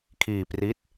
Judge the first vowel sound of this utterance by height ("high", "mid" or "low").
high